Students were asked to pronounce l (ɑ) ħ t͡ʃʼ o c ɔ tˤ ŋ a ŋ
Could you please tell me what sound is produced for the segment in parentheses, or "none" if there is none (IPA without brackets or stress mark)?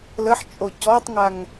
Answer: ə